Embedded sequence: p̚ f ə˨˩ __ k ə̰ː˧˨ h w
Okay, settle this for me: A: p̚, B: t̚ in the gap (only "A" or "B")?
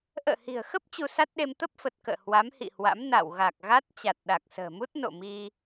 B